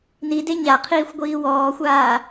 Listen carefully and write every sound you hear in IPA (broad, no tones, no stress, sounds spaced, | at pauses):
n i d e ɲ a qʰ iː xʷ ɡʷ iː w ɔː xʷ aː